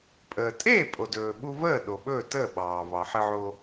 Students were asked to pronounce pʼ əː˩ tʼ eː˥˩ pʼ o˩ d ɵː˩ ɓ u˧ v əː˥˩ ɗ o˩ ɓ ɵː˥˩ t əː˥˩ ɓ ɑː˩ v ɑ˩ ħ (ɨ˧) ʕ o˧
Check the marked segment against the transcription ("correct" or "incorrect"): correct